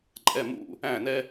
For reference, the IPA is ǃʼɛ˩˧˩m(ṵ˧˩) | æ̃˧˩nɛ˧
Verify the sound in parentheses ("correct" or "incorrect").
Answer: correct